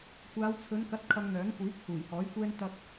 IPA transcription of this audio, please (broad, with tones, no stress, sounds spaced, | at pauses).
kʷ aː˨˧ w t͡sʰ ɵ˨˧ n k ɐ˨˥ t̚ kʰ ɐ˧ ŋ n̪ œː˨˥ ŋ kʷ iː˨˥ k̚ h uː˨˩ j h ɔː˨˥ j kʷ ɛː˧ n t̪ ɐ˧ k̚